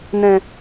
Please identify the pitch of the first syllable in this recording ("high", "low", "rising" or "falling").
low